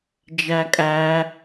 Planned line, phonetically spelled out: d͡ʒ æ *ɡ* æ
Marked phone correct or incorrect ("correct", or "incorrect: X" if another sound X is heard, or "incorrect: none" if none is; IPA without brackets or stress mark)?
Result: incorrect: kʼ